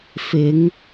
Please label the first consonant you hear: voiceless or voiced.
voiceless